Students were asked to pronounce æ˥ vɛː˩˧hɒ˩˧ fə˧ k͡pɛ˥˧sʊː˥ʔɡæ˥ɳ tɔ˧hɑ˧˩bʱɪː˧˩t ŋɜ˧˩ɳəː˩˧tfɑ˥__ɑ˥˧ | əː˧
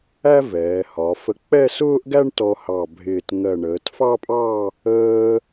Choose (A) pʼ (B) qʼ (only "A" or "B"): A